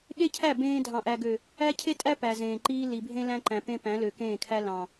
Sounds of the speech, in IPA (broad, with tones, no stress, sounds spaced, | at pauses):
ɠ e˦ cʰ æ˦˨ b ẽː˦ dʱ ɑ̃˨ ʔ æ˨ ɡ ø˨ | æ˦ cʰ e˦ tʼ æ˦ p æ˨ z ẽː˨ ǃ iː˦ l i˨ bʱ ẽ˦ l æ̃˦ ǃ æ̃˨ p ẽ˦ p æ̃˨˦ l ø˨ k ẽː˦˨ kʰ æ˦ l ɑ̃˨